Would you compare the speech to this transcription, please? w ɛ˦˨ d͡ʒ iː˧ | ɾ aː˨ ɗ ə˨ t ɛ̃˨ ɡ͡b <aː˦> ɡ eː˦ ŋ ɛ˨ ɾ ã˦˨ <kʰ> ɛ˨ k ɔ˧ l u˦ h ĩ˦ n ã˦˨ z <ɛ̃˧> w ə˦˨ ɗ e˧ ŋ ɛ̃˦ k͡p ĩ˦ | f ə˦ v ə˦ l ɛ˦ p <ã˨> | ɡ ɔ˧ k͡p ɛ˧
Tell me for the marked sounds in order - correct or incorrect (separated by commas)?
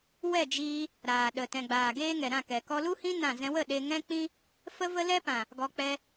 incorrect, incorrect, correct, correct